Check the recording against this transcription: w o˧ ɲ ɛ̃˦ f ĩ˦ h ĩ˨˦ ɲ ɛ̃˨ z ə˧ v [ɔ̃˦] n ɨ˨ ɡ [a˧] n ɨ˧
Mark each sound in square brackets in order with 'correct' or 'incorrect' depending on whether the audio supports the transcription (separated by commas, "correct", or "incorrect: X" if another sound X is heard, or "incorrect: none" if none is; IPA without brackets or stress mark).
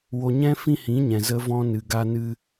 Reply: incorrect: ɔ̃˧, correct